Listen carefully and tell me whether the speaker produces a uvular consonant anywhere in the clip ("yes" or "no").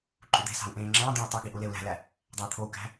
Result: no